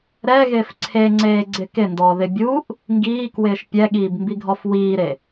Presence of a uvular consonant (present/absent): absent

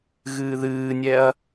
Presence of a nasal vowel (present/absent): absent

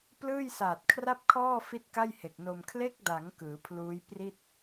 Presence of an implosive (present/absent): absent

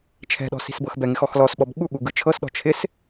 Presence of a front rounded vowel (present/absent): absent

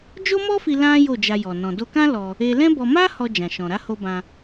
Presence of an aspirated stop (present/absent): absent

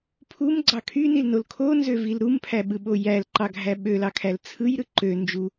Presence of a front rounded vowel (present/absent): present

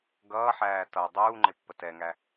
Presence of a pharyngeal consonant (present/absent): present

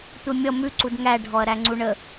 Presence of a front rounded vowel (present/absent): absent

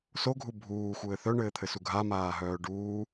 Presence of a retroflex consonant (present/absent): present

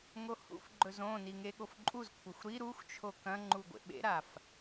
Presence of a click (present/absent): present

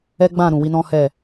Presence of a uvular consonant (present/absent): absent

